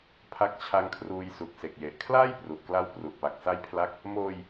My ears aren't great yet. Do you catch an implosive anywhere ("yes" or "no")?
no